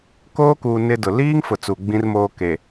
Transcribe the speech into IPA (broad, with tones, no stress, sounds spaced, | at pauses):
k oː˦ k uː˨ n ɪ˦ d ʊ˨ l iː˦ ŋ f ʊ˨ t͡s u˨ ɡ͡b ĩ˦ r m oː˦ k e˨